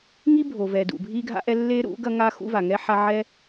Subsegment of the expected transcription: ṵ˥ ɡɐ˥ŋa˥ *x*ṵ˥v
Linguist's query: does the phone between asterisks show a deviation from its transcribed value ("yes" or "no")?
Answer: no